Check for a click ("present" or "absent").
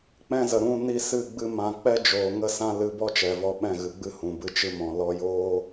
absent